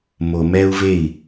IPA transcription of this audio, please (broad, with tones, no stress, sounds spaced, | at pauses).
m o˨ m ɛ˧ u̯ v e˦˨ i̯